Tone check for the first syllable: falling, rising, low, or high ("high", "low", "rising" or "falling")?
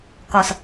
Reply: low